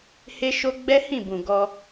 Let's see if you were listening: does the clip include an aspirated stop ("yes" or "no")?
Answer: no